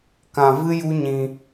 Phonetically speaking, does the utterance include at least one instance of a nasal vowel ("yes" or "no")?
yes